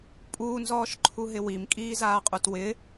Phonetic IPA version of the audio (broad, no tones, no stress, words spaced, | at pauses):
pʼuːnzɔːʃǃʰuɦɪ wimkʼiː zaːqʼutwɪ